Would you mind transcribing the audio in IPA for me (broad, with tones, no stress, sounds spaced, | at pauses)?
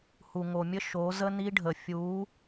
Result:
h u˨ ŋ o˨ mʲ ə˦ ʃ o˨˦ z ə˦ n i˦ ɖʱ ə˨ fʲ u˨˦